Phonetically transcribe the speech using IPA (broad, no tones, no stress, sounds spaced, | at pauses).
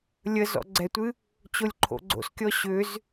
lʲ ə z ɔ̰ ɡ͡ǀ ɛ tʷ ɨ | t͡ɕ o lʲ ǃʰ o̰ ɡ͡ǀ o̰ s kʲ ɔ ɕ ʏ z